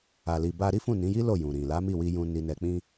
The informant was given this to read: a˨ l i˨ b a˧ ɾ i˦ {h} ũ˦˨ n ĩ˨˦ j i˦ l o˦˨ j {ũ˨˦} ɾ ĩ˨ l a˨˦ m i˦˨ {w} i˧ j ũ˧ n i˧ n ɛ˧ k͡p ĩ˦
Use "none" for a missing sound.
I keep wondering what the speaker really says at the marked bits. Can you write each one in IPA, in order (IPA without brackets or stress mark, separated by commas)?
f, ũ˨, w